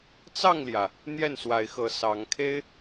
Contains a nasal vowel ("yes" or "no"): no